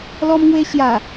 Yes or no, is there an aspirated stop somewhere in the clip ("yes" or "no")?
no